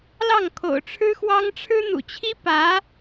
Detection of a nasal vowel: absent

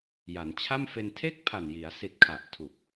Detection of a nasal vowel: absent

